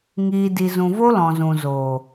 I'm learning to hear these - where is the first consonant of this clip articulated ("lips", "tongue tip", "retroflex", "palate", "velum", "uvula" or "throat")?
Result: velum